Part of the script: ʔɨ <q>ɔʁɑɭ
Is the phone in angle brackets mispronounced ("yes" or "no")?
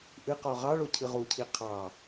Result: no